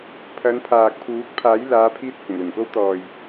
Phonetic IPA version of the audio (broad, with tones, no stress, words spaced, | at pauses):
pʰɐ˨˧npʰaː˨k̚pʰuː˨˥k̚ pʰaː˨˥jlaː˨˧pʰiː˧t̚ hʊ˨˩ŋlɵ˨˩nko˥w t̪ɔː˨j